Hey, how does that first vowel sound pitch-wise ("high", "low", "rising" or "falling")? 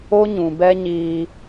high